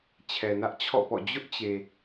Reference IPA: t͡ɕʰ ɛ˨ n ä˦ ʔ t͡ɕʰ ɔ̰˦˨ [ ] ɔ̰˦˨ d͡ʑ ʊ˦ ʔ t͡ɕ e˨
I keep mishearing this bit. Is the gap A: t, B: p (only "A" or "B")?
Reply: B